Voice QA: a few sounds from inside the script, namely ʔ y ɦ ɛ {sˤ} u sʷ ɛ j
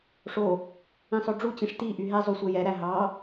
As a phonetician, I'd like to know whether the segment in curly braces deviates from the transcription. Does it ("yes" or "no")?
yes